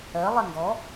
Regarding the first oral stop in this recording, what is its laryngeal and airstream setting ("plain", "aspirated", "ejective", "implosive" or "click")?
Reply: plain